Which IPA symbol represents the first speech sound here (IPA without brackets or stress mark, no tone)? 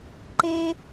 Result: ǃ